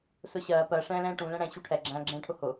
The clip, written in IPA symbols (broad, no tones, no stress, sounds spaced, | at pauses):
s ʊ ɕ ɜː p ɜ ʂ ɛ̃ː l ɛ̃ː ʈ ũ l ɛ̃ ɽ ɛ̃ ɕ u ʈʰ ɛ ɡ͡ǁ æ̃ː ɡ͡ǁ ɛ̃ː ʈʰ ʊ h ʊ